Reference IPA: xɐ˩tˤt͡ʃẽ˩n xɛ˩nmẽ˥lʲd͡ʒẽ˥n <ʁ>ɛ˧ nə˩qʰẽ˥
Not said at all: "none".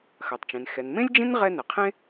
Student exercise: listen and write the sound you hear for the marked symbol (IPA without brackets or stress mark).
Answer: ʁ